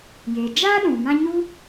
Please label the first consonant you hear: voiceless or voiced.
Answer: voiced